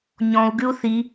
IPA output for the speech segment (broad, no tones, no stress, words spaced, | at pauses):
ɲɔ̃u̯ɡʉu̯ θi